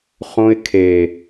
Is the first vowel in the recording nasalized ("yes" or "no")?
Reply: yes